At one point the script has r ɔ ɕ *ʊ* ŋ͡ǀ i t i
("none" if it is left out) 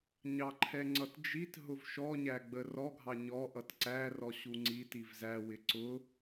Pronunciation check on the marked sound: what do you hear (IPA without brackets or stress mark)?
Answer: u